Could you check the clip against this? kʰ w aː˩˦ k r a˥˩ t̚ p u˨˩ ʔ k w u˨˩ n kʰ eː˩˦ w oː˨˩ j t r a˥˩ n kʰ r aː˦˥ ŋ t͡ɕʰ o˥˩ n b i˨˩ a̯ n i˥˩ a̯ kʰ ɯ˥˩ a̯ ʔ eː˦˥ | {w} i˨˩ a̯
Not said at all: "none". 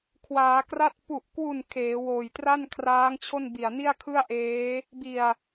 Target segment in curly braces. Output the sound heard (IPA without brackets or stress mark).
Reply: b